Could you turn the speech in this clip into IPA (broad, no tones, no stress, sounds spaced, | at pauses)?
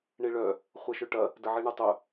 ɳ i ɭ œ | χʷ ɛ ʃ ø ʈ ɐ | d ə ʕ i ɳ ə tˤ œ